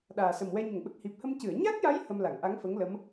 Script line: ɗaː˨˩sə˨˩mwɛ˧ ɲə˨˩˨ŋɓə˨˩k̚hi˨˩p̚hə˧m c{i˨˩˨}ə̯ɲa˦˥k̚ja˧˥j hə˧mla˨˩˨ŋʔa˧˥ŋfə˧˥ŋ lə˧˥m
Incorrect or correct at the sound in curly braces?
incorrect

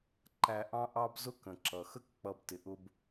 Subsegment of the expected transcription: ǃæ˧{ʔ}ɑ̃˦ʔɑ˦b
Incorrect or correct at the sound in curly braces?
correct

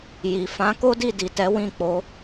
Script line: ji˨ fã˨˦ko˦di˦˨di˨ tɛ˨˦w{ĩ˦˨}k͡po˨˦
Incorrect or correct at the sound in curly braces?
correct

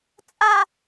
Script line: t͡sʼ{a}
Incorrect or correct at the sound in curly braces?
correct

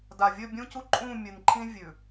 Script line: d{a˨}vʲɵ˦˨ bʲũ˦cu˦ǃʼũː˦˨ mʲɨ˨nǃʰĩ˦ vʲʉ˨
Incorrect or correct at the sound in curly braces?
correct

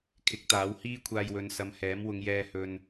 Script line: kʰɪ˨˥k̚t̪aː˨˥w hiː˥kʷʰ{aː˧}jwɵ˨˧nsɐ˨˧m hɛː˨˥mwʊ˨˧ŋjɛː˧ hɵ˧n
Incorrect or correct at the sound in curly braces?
correct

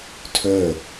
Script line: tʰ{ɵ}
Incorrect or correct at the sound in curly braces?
correct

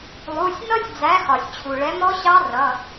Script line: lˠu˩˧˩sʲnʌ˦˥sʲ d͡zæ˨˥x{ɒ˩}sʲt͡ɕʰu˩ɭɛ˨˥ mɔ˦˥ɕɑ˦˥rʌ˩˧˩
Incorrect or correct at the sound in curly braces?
correct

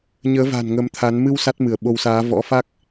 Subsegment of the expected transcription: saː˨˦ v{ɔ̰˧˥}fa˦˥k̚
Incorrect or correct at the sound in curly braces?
correct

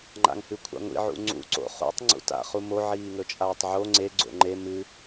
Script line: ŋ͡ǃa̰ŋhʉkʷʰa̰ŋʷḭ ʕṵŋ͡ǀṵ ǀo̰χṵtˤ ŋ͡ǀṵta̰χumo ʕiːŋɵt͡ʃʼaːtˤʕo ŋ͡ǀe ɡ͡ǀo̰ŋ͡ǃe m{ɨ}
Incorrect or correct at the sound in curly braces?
correct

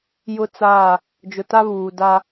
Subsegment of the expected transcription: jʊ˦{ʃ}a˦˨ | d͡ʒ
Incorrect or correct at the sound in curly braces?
incorrect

